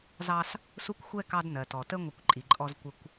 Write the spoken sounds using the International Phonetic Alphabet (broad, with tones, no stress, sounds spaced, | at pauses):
z ɑ˦ s | s u˦ kʷ xʷ ɛ˦ k ɑ˦ d n ɜ˨ t ɔ˨ t ə˦ ŋʷ ɪ˦˨ kʷ ǃʼ i˨ ǃʼ ɔ˦ z kʷ ə˦ kʷ